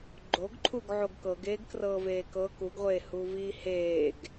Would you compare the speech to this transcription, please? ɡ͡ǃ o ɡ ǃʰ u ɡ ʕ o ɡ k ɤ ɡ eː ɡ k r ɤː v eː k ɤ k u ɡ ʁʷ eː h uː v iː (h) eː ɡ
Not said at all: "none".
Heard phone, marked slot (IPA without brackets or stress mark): h